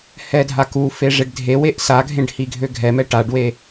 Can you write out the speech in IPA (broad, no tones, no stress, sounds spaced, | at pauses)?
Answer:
h ɛ dʱ a k u f e ʐ e ɖ dʱ e w e ʔ s a ɡʱ ẽ ɖ h i ɡʱ ø ɡʱ ɛ m ɛ ʈ a ɖ w e